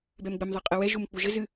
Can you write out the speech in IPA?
b ɛ m ɡ͡b ɘ m ðˤ e qʼ ɘ w ɛ ʒ u m k͡p u ʒ ɘ z ɨ

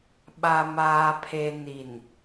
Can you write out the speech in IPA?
ɓ a˨ m aː˨ pʰ e˨ n i˨ n

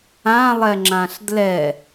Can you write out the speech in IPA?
ã lˠ ɛ ŋ͡ǁ ã ɬ d l ɛ

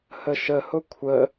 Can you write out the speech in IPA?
h ə ʃ ə h ʊ kʷʰ ə

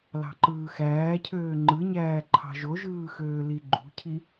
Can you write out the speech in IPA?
l ɑ̤ ǃ ɯː x æː cʰ øː ŋ͡ǃ ɯ ɲ æː ǃʰ ɑ̤ ʒ o ʒ ɯː x øː l i ɡ͡ǃ ṳ cʰ i

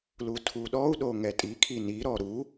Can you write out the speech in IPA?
l u tʰ u ɗ ɔ u̯ ɗ o ŋ ɛ tʼ i kʰ i n i ɾ ɔ ɾ u

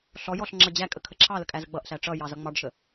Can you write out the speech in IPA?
ɬ ɔ j ɔ ɬ ŋ͡ǁ ʌ d͡ʑ æ kʼ ə kʰ ə ǁʰ ɑ l ə kʼ æ z ə ɡ͡b ʌ ʔ ɬ æ ʈ͡ʂ ʌ j ɑ z ʌ ŋ͡m ɑ ɖ ʃ ə

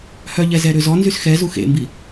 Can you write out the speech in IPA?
h œ ʎ ɛ z ɛ ɾ ø z ɔ n z y s x ɛ z u x ḛ m b i

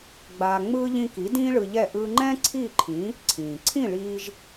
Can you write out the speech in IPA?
ɡ͡b aː˧ ŋ͡m ɯː˥ ʎ ĩ˧ k i˩˥ d ĩː˥ ɭ ɯ˧ ʎ ɛ˥˩ ʔ ɯː˧ ŋ͡ǃ ɛ̃ː˥ ǀʰ iː˥˩ ǃʰ ĩ˩˥ | ǀʰ ĩː˩ ǀʰ ĩ˥˩ ɭ iː˧ ʒ

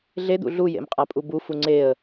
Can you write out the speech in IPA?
ɮ e d̪ ṵ ɮ u j ḛ m qʼ a pʼ u b u f u ŋ͡ǀ e ə̯

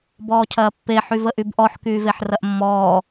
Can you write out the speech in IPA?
b ɔː cʰ ɐː pː e ħ y v ə ʔ y b ʔ ɔ ħ k yː v e ħ r ɐ ʔ mː ɔː

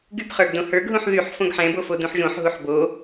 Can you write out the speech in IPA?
ɡ y p χ ə˞ ɡ d õ h ə˞ ɡ ɦ ũ ħ ð y ħ f õ ɡ ħ ɛ̃ b o f o d ũ ħ ʒ õ ħ ɦ u ħ b o

